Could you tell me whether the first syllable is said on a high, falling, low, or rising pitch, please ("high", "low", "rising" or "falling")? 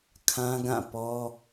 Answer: high